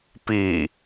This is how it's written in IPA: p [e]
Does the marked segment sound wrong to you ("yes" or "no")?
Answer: yes